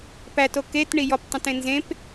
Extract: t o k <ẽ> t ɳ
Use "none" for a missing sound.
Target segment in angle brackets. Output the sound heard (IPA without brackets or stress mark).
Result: e